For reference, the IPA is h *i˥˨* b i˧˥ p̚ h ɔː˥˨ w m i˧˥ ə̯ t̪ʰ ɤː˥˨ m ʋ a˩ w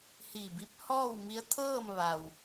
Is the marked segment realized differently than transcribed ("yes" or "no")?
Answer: yes